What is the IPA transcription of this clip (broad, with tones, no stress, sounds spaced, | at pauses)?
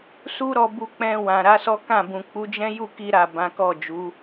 s u˦ ɾ ɔ˧ b u˧ k͡p ɛ̃˧ w ã˨ ɾ a˨˦ s ɔ˦ k ã˦˨ b ũ˨ k͡p u˨˦ d͡ʒ ɛ̃˦ j u˦˨ k i˧ ɾ a˨ b ã˨˦ k ɔ˦˨ d͡ʒ u˨˦